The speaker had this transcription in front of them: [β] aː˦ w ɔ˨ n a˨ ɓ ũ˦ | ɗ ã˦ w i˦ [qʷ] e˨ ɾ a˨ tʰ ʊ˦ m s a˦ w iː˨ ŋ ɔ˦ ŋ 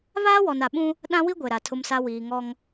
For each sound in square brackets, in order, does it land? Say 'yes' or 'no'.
yes, no

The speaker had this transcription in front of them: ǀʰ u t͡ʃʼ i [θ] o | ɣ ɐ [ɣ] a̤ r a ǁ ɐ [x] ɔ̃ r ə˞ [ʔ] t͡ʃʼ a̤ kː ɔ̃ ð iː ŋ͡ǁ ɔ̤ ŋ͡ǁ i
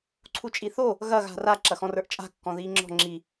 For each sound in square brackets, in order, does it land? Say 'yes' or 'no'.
yes, yes, yes, yes

